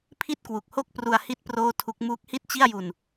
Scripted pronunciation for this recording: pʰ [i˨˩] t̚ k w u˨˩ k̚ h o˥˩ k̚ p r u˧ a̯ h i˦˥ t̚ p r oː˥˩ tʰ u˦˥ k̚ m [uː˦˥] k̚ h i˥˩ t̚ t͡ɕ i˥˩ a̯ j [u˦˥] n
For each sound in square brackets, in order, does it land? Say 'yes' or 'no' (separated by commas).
no, yes, no